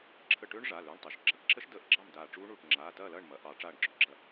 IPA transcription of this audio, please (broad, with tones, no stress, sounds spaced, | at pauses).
ǁʰ ə˧˩ ʈ ø˦˥ ɳ ʐ a˩˧˩ l ø˩˧˩ ɳ tˤ ø˩˧ ʃ ɡ͡ǁ ɑ˩˧ ʈ ǁ ə˦˥ ʃ d əː˧˩˧ ʔ ɡ͡ǁ ɑ˥˨ m d aː˧˩ ʈ͡ʂ uː˦˥ ɳ uː˧˩ ʈ ŋ͡ǁ aː˩˧˩ t ɐː˥˨ l ɐː˥˨ ɳ m ɐ˩˧˩ ʔ ɑ˧˩˧ ʈ͡ʂ aː˧˩ ɳ ɡ͡ǁ ø˩˧˩ ɡ͡ǁ ɐ˧˩